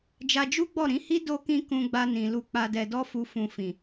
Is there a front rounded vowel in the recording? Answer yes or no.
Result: no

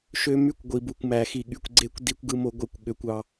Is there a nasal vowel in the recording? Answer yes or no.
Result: no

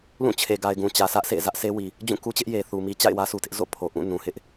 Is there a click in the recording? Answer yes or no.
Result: no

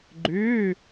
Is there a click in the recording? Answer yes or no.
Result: yes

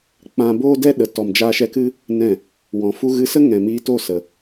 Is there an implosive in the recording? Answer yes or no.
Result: yes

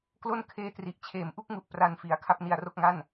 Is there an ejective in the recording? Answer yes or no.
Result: no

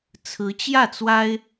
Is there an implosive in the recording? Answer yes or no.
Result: no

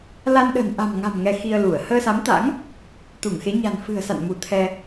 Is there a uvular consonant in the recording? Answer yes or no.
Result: no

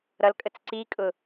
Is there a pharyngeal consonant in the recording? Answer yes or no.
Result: no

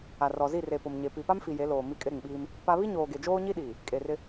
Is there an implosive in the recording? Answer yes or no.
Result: yes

